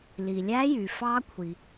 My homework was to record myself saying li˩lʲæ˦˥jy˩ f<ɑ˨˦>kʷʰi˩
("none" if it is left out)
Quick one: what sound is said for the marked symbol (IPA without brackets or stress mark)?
ɑ˦˥